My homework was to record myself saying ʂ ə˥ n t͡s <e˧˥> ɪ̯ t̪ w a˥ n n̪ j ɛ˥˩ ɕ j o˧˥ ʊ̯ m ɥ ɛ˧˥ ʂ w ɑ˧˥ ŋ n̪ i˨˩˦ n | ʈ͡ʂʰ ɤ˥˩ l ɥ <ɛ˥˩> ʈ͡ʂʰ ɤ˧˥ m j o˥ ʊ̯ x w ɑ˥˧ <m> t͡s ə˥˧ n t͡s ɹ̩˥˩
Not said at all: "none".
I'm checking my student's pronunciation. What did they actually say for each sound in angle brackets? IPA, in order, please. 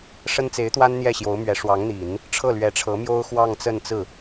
e˧˥, ɛ˧˥, ŋ

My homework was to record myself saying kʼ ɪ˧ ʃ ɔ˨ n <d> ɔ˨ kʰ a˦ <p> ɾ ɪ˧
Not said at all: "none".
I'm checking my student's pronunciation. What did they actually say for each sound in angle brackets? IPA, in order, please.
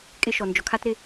d͡ʒ, t

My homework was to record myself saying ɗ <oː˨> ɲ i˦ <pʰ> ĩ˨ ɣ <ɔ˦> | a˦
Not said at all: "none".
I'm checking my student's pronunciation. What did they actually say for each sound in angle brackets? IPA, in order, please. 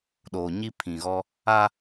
oː˨, pʰ, ɔ˦

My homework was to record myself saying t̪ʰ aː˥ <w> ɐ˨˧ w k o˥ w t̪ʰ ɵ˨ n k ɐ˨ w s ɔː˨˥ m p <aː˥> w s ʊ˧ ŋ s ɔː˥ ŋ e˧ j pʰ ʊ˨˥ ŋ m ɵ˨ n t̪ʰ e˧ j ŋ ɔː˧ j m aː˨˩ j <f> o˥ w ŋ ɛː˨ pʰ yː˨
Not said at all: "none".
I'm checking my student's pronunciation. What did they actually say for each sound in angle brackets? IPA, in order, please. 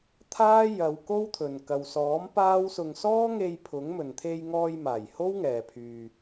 j, aː˥, h

